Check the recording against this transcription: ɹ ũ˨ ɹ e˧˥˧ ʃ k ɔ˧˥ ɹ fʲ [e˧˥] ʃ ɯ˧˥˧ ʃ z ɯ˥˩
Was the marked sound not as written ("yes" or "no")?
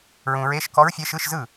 no